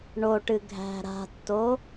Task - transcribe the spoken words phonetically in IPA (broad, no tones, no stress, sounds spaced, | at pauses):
ɳ o ʈ ɨ ɡʱ æ̤ ɾ a̤ tː o